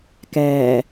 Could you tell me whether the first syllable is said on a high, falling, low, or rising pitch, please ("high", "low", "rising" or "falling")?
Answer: low